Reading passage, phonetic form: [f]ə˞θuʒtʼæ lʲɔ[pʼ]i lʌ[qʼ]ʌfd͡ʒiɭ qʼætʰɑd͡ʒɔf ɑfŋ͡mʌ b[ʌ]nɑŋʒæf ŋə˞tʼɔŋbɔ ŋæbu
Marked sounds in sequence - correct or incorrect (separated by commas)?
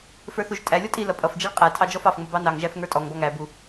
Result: correct, incorrect, incorrect, incorrect